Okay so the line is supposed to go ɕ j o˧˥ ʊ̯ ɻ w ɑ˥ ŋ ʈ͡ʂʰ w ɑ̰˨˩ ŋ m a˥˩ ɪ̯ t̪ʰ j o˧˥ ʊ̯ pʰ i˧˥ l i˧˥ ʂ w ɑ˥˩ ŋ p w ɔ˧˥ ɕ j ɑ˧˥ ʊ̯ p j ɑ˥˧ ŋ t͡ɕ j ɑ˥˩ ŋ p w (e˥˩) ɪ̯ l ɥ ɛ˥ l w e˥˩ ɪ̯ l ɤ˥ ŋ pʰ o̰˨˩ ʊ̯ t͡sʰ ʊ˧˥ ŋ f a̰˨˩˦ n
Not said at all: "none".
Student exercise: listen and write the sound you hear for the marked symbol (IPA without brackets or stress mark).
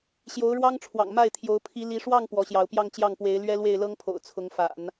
e˧˥